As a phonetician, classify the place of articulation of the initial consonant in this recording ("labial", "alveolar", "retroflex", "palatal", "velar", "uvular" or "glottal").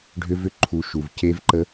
retroflex